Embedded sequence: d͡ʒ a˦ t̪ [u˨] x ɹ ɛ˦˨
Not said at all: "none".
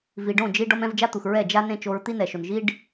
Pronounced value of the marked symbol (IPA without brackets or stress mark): u˨